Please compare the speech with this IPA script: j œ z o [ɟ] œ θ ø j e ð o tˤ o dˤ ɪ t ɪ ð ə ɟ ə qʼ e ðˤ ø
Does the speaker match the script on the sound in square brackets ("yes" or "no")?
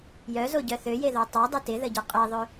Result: yes